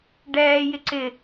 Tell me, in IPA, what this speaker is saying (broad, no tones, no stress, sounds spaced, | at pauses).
ɖ ɛː j ɪ ǀ ɪ